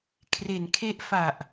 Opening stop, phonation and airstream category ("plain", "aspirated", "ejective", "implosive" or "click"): aspirated